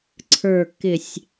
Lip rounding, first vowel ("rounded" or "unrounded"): unrounded